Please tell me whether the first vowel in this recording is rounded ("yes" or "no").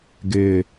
no